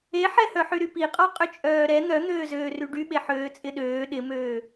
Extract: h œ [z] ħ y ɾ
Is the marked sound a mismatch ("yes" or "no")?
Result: yes